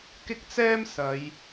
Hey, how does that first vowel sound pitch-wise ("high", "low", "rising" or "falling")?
high